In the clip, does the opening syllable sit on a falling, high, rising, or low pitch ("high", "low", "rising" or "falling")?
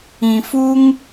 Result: low